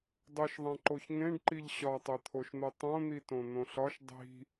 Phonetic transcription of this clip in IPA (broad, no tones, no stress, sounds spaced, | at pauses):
dˤ o ʃ ðˤ æ̃ ǃ o ç ŋ ẽ ɖ ǃ i ʎ ɕ ɒ tˤ e t̪ʰ o ʃ n̪ o tˤ õ n̪ i t õ n̪ õ ɬ ɒ ʃ dˤ i̤